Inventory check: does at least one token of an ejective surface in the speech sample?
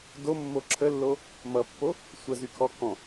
no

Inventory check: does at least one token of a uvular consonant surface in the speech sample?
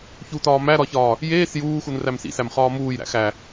yes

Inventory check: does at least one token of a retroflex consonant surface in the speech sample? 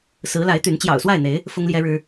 yes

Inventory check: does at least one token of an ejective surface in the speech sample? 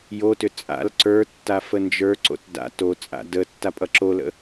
yes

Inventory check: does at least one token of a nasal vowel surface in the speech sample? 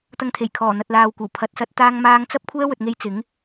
no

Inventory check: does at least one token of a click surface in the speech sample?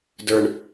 no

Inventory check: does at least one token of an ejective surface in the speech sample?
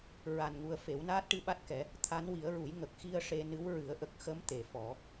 no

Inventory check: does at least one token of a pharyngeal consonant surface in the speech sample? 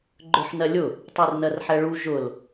yes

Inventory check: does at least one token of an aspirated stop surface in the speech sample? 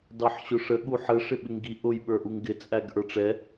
no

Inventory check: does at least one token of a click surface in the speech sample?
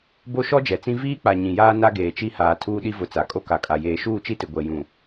no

